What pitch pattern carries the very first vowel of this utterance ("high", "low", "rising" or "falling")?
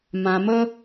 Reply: low